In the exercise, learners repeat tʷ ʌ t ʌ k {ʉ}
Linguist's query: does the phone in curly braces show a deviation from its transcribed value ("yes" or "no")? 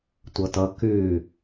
no